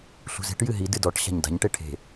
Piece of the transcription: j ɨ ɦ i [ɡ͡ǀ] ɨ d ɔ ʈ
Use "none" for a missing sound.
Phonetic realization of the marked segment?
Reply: d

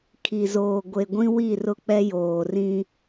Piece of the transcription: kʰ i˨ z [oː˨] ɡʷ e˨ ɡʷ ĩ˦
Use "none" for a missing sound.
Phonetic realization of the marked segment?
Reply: oː˨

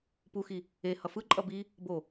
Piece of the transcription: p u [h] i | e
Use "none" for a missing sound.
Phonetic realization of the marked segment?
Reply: x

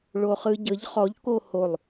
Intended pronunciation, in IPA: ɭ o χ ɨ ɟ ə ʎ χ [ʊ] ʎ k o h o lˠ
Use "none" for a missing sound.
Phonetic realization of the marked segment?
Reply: ɔ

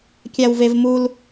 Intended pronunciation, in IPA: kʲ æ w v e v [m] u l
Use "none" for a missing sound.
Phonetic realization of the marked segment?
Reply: m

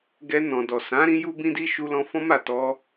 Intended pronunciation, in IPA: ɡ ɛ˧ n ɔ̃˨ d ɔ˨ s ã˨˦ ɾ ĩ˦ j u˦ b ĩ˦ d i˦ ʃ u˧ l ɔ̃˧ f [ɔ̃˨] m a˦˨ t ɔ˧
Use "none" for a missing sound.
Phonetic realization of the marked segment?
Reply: ɔ̃˦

